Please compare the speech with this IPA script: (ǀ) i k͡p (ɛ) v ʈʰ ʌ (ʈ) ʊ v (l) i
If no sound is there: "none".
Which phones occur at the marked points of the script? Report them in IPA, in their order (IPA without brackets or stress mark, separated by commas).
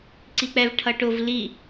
ǀ, ɛ, ʈ, l